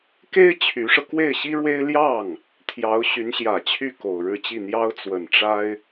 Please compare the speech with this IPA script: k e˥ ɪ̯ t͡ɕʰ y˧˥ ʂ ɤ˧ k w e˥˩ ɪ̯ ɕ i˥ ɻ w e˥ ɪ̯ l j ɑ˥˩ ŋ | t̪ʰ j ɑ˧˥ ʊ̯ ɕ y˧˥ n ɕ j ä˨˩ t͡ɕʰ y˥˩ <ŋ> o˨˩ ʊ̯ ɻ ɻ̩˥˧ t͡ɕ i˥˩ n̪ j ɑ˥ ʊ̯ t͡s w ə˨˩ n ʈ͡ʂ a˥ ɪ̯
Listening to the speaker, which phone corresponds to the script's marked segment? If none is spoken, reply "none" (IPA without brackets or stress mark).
k